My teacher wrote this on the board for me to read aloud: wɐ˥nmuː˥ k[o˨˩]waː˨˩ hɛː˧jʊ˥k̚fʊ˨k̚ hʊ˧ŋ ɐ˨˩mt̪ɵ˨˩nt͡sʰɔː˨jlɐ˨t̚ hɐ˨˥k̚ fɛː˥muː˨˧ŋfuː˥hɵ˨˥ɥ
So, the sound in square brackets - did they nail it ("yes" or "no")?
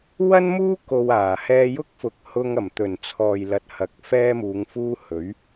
no